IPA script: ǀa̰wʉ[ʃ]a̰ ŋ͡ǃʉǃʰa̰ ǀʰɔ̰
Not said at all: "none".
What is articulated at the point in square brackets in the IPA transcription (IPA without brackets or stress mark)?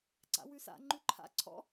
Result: s